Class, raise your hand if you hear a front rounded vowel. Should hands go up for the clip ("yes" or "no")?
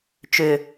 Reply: yes